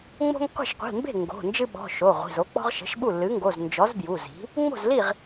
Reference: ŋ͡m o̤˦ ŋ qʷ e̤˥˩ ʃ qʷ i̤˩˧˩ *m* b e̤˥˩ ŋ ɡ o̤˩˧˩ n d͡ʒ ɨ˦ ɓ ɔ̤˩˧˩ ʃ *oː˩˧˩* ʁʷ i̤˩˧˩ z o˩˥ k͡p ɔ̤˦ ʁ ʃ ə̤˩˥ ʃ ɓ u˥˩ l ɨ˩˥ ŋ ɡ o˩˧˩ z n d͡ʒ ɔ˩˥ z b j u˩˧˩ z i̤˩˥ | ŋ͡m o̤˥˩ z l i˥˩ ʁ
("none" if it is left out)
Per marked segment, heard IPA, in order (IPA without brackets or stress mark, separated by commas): m, o˩˧˩